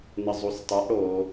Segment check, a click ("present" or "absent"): absent